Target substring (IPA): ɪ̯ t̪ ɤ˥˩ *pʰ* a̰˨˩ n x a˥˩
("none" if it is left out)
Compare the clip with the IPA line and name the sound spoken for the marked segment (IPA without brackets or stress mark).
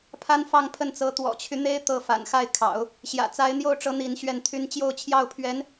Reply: f